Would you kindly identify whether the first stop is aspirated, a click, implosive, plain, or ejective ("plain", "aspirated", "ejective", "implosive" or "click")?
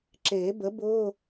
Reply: click